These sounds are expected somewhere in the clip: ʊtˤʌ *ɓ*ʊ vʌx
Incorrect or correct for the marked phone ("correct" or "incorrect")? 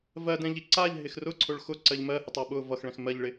correct